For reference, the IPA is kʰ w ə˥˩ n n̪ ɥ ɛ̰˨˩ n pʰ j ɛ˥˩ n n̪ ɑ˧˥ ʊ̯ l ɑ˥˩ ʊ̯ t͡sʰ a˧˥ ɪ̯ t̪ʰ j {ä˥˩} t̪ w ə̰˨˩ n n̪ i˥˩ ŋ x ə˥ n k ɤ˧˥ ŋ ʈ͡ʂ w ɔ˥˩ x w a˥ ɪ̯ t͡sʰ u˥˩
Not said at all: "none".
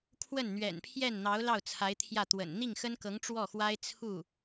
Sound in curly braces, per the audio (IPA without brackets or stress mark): ä˥˩